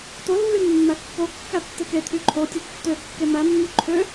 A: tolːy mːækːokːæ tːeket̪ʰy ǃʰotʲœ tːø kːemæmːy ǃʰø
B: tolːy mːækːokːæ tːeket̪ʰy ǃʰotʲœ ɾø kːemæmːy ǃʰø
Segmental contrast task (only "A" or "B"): A